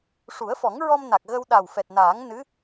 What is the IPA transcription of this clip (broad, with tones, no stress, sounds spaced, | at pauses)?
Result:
ʂ u˨˩˦ ə̯ f ɔ˨˩˦ ŋ ɹ ɔ˧ m n a˨˩ k̚ ɣ ə˧ w ɗ a˨˩ w f ɛ˨˩ t̚ n aː˨˩˦ ŋ n ɨ˧˥